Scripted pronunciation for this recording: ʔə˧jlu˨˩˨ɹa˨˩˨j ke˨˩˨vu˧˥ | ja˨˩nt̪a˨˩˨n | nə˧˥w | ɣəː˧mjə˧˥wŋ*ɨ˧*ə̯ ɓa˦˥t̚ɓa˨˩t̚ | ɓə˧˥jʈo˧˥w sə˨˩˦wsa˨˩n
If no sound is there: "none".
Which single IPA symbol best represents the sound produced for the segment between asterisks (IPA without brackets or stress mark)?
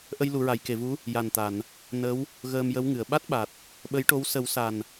ɨ˨˩˨